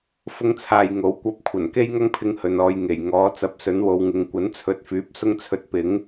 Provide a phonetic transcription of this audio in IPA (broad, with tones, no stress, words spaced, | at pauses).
fʊ˥ŋt͡sʰaː˧jŋo˨˥w kʷɐ˧p̚ kʷʰɐ˨˩nke˥jŋɐ˥ŋpʰɪ˧ŋ hɵ˨nɔː˨˧j ŋe˨˩jŋɔː˨˥ t͡sɐ˨˥p̚sɵ˨˥nwo˨˧w ŋɪ˨˧ŋ kʷɐ˨˥nt͡sʰɵ˨˥t̚fyː˨˥p̚ sʊ˥ŋt͡sʰɵ˧t̚pɪ˨˥ŋ